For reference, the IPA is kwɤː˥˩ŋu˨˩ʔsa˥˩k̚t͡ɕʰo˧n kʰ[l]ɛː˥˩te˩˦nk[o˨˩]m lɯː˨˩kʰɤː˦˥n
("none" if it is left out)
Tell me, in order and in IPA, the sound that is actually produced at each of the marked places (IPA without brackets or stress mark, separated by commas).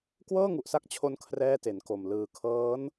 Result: r, o˨˩